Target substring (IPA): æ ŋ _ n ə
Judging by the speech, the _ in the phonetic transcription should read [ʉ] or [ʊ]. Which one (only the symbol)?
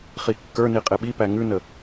ʉ